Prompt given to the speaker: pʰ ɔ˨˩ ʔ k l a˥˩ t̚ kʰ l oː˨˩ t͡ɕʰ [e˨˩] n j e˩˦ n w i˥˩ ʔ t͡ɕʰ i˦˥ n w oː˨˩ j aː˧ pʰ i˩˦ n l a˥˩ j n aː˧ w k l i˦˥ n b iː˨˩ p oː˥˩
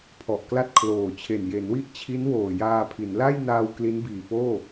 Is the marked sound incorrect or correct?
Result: correct